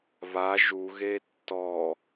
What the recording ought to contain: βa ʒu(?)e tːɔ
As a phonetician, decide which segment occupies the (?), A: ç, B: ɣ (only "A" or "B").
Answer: B